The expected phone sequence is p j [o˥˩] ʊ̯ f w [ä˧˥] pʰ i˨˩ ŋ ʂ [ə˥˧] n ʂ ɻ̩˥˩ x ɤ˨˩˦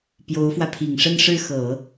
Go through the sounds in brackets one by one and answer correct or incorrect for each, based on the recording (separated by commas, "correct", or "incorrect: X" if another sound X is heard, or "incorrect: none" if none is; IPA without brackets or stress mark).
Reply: incorrect: o˧˥, incorrect: ä˧, correct